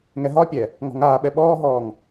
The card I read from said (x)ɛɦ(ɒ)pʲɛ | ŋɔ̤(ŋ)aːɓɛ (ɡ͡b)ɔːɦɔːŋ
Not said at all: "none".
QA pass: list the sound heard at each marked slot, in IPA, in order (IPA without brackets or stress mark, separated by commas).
ŋ, ɒ, ŋ, ɓ